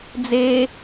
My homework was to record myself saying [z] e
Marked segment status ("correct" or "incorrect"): incorrect